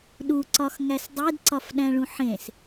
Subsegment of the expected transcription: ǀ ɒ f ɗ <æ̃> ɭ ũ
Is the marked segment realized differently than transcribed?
no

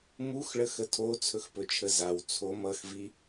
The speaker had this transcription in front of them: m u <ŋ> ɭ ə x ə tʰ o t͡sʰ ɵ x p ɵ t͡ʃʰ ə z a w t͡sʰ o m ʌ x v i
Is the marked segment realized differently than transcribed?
yes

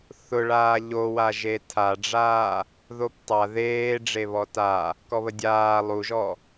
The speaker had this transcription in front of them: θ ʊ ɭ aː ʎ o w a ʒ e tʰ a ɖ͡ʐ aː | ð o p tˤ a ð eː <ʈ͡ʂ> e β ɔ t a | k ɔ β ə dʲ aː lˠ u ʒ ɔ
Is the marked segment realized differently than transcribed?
yes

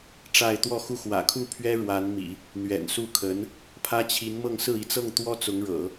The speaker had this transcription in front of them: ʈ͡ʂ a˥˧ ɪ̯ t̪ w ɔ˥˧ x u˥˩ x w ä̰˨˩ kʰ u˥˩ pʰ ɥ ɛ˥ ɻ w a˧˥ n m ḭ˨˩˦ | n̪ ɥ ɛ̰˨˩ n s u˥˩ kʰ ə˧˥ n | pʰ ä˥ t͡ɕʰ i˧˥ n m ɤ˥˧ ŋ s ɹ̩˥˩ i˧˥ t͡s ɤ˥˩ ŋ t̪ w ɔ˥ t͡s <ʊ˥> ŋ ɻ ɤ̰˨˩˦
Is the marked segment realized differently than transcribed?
yes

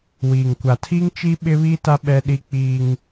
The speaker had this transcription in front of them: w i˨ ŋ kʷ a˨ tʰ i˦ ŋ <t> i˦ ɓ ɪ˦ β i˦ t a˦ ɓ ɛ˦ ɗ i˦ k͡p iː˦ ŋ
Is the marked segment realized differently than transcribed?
yes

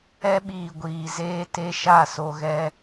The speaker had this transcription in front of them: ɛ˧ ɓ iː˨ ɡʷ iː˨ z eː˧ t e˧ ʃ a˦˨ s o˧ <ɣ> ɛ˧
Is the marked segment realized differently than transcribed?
no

